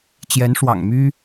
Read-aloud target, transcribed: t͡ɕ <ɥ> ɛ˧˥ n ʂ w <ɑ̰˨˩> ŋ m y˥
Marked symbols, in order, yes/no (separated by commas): no, yes